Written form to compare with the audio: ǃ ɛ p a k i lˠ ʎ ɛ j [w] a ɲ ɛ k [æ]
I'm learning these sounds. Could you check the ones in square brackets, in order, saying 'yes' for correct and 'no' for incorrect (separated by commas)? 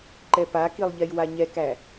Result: yes, yes